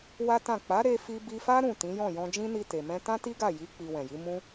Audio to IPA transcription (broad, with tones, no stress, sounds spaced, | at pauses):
w a˦ t ã˦˨ k͡p a˨˦ ɾ e˧ f i˧ b i˧ f a˦ ɾ ũ˦˨ t ĩ˨˦ j ɔ̃˦˨ j ɔ̃˧ d͡ʒ ĩ˦ n i˧ t e˨ m ɛ̃˧ t ã˦ t i˦ ɡ a˦˨ j i˨˦ k͡p i˧ w ɛ̃˨ j i˨˦ m ũ˧